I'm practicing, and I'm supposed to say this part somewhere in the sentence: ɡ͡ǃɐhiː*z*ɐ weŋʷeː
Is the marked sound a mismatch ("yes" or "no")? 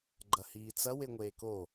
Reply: yes